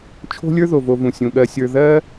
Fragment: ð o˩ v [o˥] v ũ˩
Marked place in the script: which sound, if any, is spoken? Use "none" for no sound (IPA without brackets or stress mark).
o˨